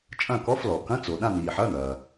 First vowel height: low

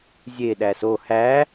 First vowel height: mid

